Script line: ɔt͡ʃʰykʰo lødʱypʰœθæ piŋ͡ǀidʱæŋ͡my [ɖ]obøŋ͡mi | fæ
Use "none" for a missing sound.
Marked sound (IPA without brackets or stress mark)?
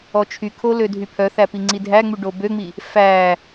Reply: ɖ